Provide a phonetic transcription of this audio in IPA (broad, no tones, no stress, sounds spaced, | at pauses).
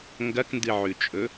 ŋ ɡ ɐ k n d ɨ ʕ ʉ t͡ʃʼ ɵ